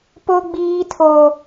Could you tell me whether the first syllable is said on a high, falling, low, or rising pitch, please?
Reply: high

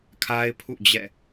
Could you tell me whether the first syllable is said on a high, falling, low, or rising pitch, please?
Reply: high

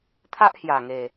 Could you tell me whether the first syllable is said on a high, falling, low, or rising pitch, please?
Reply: high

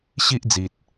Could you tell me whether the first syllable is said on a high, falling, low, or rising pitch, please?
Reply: high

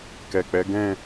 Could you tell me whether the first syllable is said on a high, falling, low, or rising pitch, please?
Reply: low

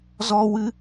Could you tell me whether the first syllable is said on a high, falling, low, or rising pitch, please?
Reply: high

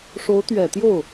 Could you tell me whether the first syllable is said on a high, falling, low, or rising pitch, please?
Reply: rising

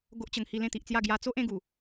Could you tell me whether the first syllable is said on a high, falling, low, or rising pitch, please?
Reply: high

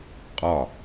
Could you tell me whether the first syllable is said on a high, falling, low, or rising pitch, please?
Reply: falling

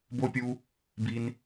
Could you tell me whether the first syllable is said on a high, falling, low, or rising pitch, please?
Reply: high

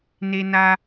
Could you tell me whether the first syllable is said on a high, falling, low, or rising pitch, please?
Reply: high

